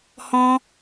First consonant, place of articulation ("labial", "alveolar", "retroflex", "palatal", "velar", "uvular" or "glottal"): glottal